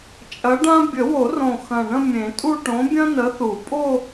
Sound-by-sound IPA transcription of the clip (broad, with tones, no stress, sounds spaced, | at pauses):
t͡ʃʼ ɐ˨˥ ɖ ã˥ bʲ ə˨˩˦ w o˨˩˦ r õ˨˩ x ɐ̃˨˩ ɳ ə̃˥˧ mʲ ẽ˨˩˦ tʼ u˥˧ ʈ õ˨˥ bʲ ɐ̃˥ n ə˨˥ θ u˨˩˦ pʼ o˥˧